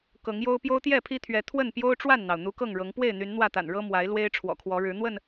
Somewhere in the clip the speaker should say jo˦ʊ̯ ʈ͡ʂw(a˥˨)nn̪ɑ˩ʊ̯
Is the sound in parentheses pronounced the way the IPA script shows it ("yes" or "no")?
yes